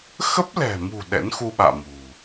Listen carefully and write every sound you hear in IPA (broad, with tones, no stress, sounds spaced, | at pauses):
x ə˦˥ p̚ l ɛ̤˨˩ m ṳ˨˩ ɗ ɛ̰˧˥ n x u˧ ɓ a̰ː˧˨ m ṳ˨˩